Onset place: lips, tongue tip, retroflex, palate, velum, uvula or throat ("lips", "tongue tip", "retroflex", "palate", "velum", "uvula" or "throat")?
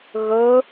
velum